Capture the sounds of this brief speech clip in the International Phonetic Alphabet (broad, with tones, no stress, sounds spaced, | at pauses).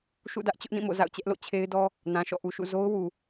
ʃ ṵ˦˨ d ä˦ ʔ t͡ɕ ʊ˦ ʔ n ĩ˦˨ m o̰˦˨ z a̰˦˨ ʊ̯ t͡ɕ ɛ˦ ʔ l o̰˦˨ t͡ɕʰ e˦ ɪ̯ d ɔ˦ | n ã˨ ʃ ɔ̰˦˨ ʔ u˨ ʃ ṵ˦˨ z o˦ ʊ̯ w u˨